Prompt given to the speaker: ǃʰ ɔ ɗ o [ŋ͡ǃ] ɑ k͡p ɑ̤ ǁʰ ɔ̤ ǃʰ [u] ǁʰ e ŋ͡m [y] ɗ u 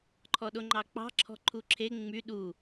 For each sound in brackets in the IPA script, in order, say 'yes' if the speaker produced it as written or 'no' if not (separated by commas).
yes, yes, yes